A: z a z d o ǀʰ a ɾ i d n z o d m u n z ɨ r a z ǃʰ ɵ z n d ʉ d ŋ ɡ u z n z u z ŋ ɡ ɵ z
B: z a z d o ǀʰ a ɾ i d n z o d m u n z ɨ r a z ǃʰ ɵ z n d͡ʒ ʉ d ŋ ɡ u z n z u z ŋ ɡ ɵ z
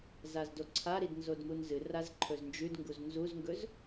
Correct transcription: B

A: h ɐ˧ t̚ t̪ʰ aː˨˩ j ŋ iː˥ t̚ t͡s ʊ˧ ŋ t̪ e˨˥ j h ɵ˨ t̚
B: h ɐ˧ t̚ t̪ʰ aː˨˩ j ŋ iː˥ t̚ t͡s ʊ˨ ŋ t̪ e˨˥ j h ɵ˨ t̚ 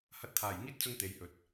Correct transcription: A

